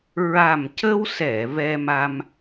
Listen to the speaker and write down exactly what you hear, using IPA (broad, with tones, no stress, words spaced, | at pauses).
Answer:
ɹa˨˩mcə˧wsɛ˨˩˨ vɛ˧ma˧m